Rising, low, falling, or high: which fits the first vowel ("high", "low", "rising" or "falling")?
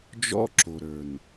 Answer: high